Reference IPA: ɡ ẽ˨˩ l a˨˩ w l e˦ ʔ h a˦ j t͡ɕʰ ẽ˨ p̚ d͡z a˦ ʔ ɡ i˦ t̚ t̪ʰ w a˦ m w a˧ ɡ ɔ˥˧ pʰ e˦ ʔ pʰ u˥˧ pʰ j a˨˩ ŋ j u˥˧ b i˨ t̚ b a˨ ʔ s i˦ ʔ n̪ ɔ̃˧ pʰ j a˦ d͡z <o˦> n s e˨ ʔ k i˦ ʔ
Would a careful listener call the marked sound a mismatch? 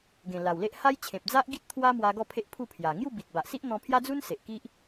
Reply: yes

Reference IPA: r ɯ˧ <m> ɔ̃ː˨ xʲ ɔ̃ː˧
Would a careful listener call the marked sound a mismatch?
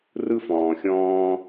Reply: yes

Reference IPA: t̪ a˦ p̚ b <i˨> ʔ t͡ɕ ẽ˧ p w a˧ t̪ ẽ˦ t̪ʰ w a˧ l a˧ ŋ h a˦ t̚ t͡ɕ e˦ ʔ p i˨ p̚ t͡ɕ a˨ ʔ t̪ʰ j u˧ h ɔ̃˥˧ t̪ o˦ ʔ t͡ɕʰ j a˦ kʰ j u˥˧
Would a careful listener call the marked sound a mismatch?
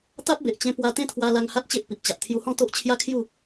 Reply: yes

